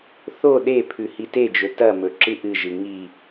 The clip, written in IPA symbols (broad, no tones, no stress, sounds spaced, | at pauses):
θ o ɗ e pʰ ʉ h i t e d͡ʒ ɵ t ɐ m ɵ ǁ ɨ ʔ ɨ ʒ ɨ ŋ i